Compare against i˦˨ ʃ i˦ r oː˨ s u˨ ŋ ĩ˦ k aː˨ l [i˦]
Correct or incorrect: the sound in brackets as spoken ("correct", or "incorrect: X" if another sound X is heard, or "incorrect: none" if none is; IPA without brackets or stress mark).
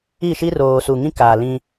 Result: incorrect: ĩ˦